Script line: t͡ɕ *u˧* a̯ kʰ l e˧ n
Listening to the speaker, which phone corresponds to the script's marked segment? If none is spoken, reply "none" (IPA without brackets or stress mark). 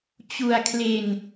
u˧